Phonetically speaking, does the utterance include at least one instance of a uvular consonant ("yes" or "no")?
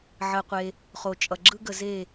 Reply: yes